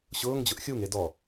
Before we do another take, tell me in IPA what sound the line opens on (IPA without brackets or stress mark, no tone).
ɕ